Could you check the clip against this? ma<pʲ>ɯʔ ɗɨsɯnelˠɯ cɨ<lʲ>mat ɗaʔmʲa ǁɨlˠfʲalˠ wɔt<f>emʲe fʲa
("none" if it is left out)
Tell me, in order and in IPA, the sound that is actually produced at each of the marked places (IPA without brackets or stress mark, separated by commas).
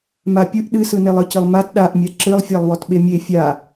pʲ, lˠ, ɓ